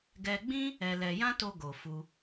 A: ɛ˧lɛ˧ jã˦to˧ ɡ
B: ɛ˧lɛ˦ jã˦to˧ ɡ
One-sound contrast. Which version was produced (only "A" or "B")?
A